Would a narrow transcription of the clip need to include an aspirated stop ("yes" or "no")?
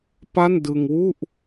no